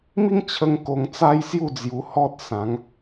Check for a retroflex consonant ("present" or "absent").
absent